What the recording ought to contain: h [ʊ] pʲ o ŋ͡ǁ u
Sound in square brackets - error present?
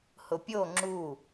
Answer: no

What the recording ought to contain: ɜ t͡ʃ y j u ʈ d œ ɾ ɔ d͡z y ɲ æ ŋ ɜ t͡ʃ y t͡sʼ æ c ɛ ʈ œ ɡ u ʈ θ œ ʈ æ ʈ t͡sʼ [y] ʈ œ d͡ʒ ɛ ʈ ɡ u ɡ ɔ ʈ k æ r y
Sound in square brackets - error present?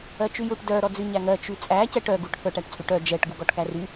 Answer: no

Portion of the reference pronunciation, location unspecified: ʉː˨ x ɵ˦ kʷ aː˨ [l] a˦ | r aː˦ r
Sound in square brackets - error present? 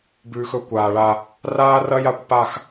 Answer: yes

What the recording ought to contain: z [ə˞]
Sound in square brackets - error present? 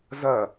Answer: yes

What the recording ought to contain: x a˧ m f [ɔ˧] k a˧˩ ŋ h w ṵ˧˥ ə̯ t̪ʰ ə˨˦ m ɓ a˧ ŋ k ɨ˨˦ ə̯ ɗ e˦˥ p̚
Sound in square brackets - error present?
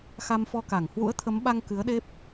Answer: no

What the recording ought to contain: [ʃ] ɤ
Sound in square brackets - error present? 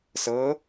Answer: yes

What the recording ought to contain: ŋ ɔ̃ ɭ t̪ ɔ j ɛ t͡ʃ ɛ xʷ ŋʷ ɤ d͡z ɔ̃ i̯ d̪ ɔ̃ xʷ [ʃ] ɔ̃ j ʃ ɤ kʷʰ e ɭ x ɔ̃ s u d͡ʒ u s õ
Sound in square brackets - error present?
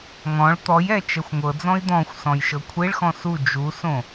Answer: yes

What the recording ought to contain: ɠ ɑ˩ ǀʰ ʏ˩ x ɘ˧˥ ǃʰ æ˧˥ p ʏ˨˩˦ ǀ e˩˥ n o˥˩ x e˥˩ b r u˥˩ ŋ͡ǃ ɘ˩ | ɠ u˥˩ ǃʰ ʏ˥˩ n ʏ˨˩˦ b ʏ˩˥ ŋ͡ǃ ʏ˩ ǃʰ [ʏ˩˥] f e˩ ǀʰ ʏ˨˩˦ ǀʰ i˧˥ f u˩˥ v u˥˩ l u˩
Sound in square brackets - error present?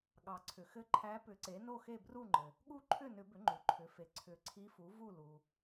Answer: no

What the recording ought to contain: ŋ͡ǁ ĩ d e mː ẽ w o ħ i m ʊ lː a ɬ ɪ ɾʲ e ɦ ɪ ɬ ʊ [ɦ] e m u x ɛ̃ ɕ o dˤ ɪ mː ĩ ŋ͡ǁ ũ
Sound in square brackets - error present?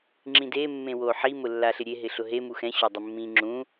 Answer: no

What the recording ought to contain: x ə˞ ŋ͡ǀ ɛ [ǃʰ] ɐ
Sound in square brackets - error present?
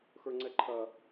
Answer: no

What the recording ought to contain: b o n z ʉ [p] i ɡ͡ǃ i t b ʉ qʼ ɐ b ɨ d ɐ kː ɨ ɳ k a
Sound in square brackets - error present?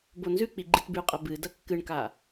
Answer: yes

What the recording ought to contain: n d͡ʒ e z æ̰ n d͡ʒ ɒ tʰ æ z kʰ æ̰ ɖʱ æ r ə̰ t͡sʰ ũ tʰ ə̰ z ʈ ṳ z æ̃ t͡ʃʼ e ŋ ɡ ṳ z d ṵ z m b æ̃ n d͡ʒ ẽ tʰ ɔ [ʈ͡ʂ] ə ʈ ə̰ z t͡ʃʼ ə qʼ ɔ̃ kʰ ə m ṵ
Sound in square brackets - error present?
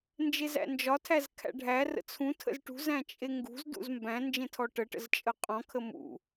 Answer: yes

